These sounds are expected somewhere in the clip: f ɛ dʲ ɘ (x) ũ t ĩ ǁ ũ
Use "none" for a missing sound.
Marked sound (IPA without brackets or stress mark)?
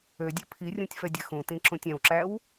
x